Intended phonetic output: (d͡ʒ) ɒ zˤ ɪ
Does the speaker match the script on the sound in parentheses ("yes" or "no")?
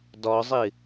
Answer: no